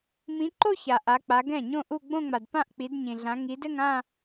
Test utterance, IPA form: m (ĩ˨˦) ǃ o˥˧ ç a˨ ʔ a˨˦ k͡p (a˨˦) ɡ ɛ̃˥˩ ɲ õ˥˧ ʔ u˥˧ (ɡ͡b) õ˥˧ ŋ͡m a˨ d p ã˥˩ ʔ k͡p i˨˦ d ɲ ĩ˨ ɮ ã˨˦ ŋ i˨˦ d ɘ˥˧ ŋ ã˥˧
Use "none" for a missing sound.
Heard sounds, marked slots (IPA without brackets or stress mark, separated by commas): ĩ˨˦, a˨˦, ɡ͡b